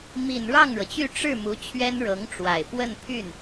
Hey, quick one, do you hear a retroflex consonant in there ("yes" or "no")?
yes